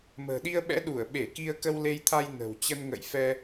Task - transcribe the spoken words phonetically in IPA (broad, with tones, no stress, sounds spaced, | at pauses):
m ə̤ː˨˩ ɗ i˧ ə̯ ɓ ɛ̰˧˥ ɗ u˧˩ ə̯ ɓ e˧˩ k i˧ ə̯ k ə˧ w l e˧ j t̪ʰ a˧ j n ə̤˨˩ w t͡ɕ ə˧ n ŋ ə̰˧˨ j f ɛ˧